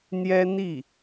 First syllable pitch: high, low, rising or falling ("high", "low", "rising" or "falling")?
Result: high